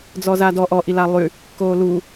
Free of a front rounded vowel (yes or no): no